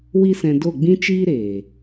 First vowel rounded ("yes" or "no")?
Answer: no